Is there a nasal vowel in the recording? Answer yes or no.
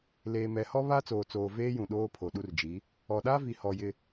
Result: yes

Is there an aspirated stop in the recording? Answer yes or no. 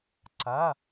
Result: no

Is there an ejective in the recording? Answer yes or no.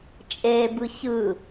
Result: yes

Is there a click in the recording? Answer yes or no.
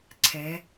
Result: yes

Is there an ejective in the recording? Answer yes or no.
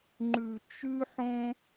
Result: no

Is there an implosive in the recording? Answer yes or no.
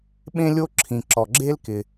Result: yes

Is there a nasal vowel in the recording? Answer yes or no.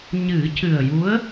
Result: no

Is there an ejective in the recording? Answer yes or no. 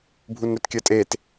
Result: yes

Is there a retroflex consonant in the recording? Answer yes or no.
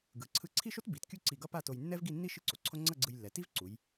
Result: no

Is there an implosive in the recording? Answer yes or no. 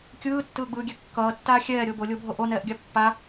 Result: no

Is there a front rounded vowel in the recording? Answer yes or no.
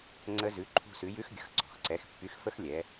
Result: yes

